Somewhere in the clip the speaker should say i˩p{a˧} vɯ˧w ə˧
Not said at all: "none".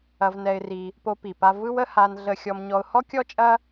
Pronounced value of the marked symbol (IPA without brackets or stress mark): a˧